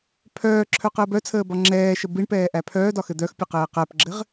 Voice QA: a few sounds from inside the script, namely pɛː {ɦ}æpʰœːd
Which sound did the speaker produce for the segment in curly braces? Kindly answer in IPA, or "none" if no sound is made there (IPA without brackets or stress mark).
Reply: ʔ